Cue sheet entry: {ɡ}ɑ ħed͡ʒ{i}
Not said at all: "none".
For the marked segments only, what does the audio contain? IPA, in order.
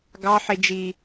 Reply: ɡ, i

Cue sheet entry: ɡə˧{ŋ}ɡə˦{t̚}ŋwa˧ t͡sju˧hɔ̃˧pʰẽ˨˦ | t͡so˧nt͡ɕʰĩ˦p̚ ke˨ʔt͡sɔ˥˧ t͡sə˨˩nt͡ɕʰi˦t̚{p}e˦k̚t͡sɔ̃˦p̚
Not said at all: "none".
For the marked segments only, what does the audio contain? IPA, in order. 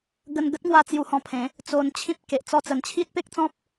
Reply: n, t̚, p

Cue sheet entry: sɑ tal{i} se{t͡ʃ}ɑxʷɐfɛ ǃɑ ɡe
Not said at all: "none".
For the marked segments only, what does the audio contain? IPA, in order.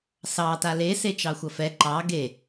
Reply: e, t͡ʃ

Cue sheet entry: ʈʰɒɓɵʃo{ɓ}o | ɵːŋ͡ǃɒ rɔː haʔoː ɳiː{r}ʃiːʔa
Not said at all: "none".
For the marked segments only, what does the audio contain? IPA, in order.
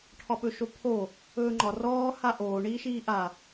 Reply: pʰ, none

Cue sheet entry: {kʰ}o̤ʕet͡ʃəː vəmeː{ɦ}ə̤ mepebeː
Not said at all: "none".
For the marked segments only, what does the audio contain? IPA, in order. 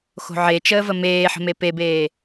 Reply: x, ħ

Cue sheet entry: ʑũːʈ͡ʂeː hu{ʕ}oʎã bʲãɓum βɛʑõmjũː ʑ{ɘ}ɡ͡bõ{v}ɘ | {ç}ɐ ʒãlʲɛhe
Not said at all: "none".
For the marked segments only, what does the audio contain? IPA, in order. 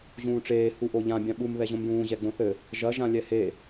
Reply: ʔ, ɛ, θ, ʒ

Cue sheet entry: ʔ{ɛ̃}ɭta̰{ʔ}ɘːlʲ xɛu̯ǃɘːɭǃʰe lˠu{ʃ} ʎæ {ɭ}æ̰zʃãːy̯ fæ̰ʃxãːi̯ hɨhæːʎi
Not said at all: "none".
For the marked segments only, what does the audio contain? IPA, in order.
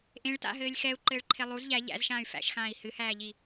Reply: ẽ, ɦ, z, ʎ

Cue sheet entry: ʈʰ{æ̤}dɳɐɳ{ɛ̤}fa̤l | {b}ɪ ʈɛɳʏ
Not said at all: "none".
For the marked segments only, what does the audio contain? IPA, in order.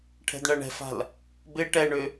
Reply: ɛ̤, ɛ̤, b

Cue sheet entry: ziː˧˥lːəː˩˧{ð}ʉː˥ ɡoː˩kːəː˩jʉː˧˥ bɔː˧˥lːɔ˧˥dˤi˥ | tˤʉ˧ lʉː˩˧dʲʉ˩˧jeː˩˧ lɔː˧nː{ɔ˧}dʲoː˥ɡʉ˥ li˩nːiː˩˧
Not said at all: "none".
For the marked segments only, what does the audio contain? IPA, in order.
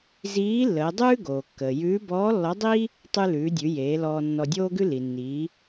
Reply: dˤ, ɔ˧

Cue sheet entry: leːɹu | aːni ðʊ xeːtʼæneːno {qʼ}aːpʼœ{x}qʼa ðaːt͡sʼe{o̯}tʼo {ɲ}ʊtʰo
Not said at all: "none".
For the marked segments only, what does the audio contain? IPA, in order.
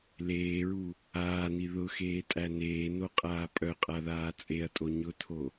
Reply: qʼ, none, ɐ̯, ɲ

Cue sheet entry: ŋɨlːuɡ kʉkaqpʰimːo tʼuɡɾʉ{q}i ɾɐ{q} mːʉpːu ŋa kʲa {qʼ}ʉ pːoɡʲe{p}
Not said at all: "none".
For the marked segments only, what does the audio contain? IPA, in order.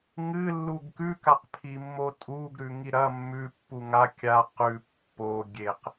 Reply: ŋ, none, q, q

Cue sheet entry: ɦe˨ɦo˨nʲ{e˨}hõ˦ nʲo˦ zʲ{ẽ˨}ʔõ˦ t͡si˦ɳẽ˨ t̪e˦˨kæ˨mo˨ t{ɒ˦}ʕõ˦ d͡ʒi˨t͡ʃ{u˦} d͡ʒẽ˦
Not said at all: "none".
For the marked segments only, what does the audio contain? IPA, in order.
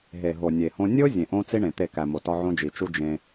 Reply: e˨, ẽ˨, ɒ˦, u˦

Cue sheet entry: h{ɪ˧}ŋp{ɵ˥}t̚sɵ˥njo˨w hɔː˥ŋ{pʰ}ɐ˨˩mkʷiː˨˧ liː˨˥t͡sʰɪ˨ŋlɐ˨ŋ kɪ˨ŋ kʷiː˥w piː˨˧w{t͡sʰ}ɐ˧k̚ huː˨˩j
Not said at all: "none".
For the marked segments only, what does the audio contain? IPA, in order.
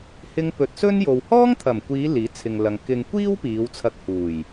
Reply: ɪ˧, ɵ˨˥, t̪ʰ, t͡sʰ

